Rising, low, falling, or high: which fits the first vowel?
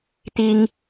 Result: high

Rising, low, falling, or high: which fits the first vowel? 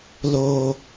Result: low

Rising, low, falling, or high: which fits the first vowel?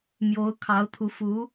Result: rising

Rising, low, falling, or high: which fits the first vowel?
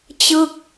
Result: falling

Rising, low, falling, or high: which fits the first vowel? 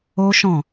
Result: high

